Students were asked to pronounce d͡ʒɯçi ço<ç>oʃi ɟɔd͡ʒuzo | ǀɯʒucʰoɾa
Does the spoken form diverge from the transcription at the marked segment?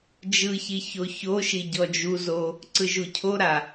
no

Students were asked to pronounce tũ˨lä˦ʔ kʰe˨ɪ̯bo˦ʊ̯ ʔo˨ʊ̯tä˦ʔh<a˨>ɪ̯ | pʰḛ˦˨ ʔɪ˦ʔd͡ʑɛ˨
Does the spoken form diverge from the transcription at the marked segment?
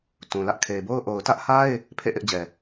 yes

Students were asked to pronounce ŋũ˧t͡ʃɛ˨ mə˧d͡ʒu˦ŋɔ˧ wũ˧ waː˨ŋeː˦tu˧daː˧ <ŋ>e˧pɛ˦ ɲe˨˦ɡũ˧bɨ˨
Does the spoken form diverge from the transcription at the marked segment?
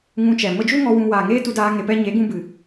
no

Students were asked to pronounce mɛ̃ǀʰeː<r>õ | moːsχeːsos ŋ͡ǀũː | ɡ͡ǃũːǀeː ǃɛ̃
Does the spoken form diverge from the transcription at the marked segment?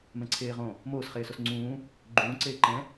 yes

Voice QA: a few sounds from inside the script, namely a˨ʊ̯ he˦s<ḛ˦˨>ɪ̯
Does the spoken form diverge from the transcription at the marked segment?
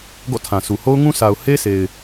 yes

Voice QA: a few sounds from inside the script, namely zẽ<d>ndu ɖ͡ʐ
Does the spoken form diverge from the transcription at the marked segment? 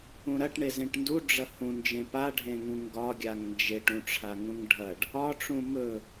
yes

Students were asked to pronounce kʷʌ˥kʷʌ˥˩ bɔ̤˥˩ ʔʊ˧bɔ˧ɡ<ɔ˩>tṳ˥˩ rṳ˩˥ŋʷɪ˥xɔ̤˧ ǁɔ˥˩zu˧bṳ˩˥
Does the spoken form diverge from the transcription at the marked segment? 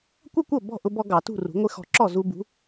yes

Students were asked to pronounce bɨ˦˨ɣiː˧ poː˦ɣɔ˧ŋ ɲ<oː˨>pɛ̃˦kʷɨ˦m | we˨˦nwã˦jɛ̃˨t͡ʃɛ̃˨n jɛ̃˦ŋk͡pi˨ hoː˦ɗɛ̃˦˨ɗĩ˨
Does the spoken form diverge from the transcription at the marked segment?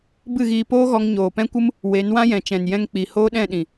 no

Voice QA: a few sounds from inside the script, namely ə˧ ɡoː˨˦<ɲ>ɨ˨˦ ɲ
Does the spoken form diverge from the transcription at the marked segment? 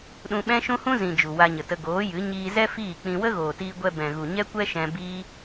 yes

